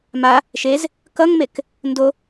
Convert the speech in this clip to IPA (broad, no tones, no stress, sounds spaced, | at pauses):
m a | ʃ e z | k ʌ ŋ m e k | n d o